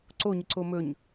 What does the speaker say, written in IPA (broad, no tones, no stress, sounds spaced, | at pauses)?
ǀ o ɲ ə ǀ o m ɵ ɲ